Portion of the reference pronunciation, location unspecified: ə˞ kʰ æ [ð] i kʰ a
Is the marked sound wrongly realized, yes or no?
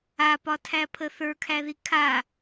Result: no